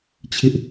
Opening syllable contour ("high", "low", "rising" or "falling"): high